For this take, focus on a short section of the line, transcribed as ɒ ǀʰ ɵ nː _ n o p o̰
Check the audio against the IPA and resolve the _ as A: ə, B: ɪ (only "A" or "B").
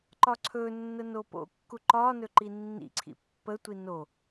A